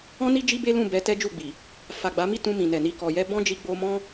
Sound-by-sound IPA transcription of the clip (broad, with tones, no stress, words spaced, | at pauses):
ɔ̃˦ni˦ d͡ʒi˦be˦lũ˦˨ bɛ˧tɛ˦d͡ʒu˦˨ɡ͡bi˨ | fa˨ɡ͡ba˨˦mi˦ tũ˧ mĩ˨nɛ˨ni˧ kɔ˨jɛ˧ bɔ̃˦d͡ʒi˧ ɡ͡bo˧mɔ̃˦